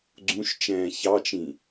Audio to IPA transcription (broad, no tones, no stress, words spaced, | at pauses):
ɡ͡ǀũʃt͡ʃɛ̃ː çɑt͡ʃĩ